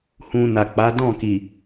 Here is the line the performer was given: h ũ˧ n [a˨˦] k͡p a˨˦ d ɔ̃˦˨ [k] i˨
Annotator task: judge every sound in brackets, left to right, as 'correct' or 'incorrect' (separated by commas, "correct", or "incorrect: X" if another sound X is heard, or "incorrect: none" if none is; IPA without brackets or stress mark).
incorrect: a˨, correct